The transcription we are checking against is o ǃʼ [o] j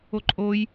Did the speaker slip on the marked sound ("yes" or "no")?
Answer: no